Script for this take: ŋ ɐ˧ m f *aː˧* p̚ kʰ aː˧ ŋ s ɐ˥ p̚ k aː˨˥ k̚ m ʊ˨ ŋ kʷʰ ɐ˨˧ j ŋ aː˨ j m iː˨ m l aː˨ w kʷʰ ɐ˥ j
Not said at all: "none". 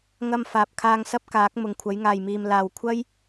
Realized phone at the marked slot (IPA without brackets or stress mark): aː˨